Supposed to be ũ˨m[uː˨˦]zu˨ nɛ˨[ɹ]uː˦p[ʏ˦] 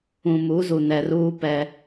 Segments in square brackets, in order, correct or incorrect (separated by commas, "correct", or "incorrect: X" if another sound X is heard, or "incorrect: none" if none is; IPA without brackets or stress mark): incorrect: u˨˦, incorrect: r, incorrect: ɛ˦